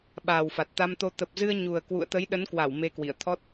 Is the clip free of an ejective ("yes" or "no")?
yes